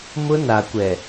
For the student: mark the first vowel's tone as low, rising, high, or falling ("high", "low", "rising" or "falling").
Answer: high